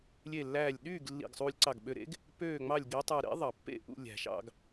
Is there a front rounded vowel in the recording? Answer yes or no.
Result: yes